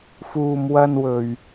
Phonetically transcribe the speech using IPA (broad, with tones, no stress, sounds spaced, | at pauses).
f uː˨ m w ɐ˧ n w ɵ˨ ɥ